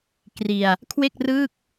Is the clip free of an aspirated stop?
no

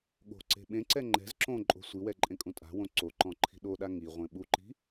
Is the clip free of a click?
no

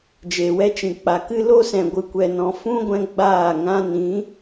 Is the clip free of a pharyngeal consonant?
yes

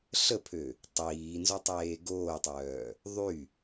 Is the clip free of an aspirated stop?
no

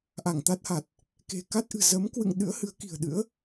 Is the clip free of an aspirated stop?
yes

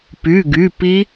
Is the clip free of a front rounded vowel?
no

